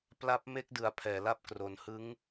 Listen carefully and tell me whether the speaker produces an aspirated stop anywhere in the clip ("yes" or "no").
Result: yes